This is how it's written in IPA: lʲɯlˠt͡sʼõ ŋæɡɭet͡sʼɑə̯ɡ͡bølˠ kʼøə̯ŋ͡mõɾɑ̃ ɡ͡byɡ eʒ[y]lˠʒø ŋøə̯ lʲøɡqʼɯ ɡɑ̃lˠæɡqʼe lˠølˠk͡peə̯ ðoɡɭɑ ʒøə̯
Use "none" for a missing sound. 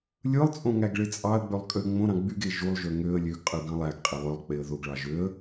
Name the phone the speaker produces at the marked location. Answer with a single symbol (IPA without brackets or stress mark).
u